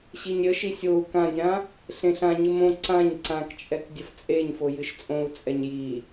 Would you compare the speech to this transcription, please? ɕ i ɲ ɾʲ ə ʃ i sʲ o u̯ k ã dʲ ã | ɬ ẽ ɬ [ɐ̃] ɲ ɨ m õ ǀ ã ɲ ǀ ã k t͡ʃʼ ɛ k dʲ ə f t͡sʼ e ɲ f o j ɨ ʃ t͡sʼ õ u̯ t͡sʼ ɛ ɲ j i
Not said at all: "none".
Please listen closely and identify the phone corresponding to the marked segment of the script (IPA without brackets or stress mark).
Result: ã